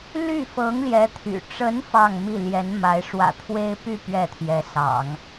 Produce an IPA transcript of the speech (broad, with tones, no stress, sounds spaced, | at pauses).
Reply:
l y˥˩ f ɤ˧˥ ŋ l j ɛ˧˥ t̪ʰ y̰˨˩ ʈ͡ʂ ə˧˥ n f ɑ˥˧ ŋ m i˥˩ l j ɛ˧˥ n m a˧˥ ɪ̯ ʂ w ä̰˨˩ t̪ʰ w e˥ ɪ̯ p y˥˧ p ɥ ɛ˥˩ t̪ʰ j ɛ˧˥ s ɑ̰˨˩˦ ŋ